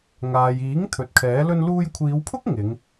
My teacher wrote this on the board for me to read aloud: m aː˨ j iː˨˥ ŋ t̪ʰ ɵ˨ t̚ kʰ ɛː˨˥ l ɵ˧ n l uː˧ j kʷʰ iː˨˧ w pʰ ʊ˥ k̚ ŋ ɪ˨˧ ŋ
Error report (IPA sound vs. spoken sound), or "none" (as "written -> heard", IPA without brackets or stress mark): m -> ŋ